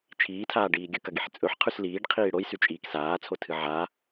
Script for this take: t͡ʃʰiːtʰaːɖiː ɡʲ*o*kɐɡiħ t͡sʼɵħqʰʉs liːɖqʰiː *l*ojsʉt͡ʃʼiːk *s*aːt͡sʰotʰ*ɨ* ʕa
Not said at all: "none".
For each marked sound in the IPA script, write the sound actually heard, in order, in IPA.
ɵ, ɽ, s, ɨ

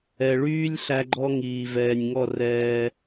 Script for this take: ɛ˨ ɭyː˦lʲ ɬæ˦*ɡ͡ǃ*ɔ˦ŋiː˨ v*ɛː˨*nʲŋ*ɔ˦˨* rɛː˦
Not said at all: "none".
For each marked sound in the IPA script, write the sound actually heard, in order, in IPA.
ɡ͡ǃ, ɛː˨, ɔ˦˨

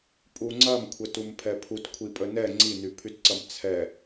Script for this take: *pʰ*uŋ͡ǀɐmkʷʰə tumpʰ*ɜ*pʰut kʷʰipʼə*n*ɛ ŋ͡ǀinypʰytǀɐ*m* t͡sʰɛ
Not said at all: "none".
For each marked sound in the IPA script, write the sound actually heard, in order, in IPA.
pʼ, ɛ, n, m

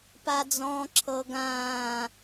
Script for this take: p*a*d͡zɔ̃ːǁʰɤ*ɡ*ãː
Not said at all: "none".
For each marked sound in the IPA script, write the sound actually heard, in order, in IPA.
a, ɡ

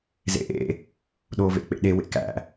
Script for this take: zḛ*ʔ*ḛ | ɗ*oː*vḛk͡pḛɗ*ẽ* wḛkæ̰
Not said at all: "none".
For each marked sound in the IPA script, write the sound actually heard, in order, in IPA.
ʔ, oː, e

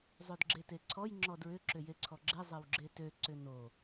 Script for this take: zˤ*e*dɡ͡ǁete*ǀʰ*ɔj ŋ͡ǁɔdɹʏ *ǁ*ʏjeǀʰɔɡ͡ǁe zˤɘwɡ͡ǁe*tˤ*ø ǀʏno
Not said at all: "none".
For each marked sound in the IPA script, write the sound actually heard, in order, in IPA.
ø, ǀʰ, ǁ, t

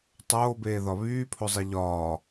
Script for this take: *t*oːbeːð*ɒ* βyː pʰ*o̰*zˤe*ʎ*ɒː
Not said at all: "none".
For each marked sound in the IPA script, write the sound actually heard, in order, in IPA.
tˤ, ɒ, o, ʎ

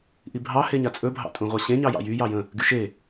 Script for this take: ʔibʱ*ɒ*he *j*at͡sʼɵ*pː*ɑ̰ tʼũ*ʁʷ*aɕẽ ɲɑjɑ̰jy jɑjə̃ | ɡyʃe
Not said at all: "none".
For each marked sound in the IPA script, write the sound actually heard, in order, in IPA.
ɑ, ɲ, bʱ, ʁʷ

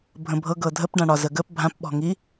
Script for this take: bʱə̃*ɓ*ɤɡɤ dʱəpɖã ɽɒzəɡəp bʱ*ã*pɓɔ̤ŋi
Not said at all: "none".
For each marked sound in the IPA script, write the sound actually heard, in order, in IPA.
bʱ, ã

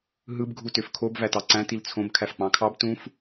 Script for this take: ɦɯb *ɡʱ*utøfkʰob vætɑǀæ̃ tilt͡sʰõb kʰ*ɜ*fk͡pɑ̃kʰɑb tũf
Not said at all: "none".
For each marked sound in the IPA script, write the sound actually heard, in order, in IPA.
ɡʱ, æ

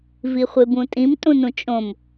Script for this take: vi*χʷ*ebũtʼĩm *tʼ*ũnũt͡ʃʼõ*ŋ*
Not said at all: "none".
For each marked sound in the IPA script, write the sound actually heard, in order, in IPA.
χʷ, tʼ, m

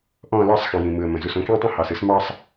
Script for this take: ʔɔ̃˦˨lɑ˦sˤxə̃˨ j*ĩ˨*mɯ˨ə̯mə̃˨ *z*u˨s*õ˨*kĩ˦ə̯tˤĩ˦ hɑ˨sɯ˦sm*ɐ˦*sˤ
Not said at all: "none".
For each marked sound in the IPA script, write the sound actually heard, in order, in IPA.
ĩ˨, z, õ˦, ɑ˦

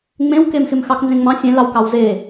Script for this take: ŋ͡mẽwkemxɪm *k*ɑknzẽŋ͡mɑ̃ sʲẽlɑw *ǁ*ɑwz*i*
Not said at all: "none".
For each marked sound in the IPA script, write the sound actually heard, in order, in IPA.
x, k, e

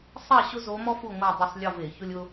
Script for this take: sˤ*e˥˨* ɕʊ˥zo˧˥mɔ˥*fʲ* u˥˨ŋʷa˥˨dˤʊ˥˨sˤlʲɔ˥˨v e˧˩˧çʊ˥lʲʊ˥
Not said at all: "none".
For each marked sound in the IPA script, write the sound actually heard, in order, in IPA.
ɛ˥˨, f

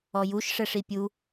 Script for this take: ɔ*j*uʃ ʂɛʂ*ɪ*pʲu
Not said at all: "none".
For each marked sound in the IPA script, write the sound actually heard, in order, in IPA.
j, i

